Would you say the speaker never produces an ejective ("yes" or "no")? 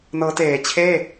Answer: yes